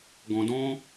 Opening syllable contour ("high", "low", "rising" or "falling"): low